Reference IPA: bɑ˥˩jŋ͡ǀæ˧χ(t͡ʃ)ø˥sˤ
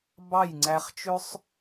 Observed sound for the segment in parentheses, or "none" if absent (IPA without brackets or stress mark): t͡ʃ